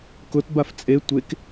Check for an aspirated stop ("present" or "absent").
absent